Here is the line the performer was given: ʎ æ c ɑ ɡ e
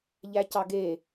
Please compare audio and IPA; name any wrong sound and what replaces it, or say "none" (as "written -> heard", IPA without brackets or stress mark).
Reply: none